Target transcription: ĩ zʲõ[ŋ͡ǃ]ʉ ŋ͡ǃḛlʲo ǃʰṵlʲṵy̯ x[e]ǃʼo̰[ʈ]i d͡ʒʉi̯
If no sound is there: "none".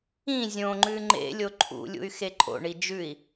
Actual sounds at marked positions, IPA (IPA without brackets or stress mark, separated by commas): ŋ͡ǃ, e, ɳ